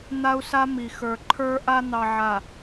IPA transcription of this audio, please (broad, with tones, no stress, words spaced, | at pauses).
n̪a˦u̯sa˦ mi˨ xə˞˨ǃʰə˞˦ʔa˦ n̪ɑ˨ʕa˨